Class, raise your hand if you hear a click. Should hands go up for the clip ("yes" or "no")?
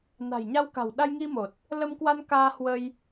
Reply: no